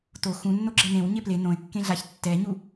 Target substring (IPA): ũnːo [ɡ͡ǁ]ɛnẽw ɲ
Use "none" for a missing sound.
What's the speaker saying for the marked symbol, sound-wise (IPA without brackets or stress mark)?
ɡ͡ǁ